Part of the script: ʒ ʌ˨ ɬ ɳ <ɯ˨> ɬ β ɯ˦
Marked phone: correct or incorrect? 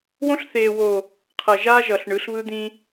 incorrect